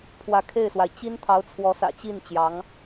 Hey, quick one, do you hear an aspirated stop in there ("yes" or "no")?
yes